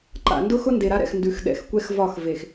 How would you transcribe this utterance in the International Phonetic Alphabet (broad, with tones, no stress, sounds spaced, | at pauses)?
ǃ a̰˨ n d ʊ˦ x ʊ˦ n d e˨ ɾ a˦ ɾ ɛ̰˨ x n d ʉ˨ x ɗ ɛ̰˨˦ x kʷ ɛ˦ x v ɒ˦˨ x v e˨ x